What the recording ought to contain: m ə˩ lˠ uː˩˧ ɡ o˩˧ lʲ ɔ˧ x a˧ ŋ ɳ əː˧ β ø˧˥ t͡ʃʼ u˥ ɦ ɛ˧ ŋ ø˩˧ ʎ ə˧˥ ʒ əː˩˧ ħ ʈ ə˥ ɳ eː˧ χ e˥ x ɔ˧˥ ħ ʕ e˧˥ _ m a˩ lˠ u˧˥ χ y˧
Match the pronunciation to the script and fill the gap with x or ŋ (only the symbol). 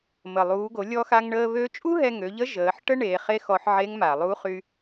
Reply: ŋ